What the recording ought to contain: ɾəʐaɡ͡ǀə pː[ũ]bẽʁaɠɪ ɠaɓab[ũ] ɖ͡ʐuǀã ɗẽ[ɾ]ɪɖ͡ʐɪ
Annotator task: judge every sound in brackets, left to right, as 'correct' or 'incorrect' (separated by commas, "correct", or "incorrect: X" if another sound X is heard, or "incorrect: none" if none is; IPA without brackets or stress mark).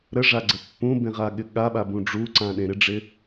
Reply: correct, correct, correct